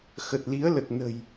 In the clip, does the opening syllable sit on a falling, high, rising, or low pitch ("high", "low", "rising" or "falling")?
low